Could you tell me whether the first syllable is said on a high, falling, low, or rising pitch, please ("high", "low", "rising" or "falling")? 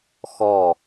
falling